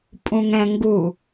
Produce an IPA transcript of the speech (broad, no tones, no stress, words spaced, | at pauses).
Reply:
pʼũŋɛ̃ŋɡu